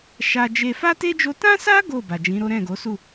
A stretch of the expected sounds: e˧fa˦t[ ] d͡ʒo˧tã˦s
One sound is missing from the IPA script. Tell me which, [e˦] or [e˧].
e˦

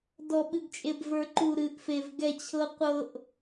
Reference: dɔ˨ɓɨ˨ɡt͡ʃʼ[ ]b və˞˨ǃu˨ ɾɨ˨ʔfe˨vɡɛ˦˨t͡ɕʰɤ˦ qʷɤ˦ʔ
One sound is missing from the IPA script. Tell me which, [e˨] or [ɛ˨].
e˨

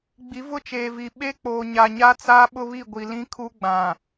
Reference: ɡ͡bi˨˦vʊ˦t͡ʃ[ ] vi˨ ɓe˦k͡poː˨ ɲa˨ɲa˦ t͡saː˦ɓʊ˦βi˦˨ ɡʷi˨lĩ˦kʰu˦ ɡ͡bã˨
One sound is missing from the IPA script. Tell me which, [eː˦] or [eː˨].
eː˨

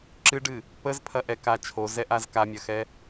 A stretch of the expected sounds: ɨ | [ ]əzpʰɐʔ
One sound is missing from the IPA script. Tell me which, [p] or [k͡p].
p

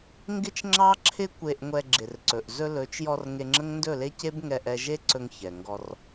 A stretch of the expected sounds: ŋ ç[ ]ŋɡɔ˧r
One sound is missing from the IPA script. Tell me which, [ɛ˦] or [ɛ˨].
ɛ˨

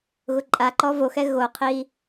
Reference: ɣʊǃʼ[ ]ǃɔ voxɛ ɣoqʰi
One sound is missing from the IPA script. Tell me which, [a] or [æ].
a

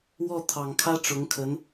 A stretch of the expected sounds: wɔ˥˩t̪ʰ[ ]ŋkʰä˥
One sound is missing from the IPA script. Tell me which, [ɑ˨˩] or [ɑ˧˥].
ɑ˨˩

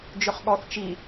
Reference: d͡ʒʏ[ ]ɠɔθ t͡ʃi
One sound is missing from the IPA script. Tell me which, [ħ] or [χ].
χ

